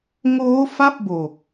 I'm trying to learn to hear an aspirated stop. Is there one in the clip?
no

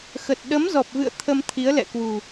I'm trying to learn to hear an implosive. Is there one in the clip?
yes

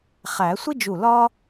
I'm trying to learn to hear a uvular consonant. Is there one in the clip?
yes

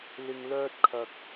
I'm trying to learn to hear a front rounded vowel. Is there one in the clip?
yes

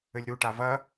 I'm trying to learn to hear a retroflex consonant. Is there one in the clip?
yes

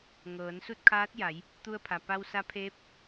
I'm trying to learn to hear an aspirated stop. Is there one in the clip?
yes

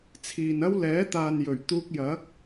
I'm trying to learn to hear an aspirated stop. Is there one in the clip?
yes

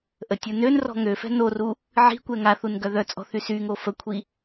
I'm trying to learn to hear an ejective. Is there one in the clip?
yes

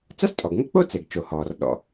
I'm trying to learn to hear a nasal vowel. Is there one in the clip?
no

